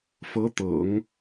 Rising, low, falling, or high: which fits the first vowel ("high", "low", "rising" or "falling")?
rising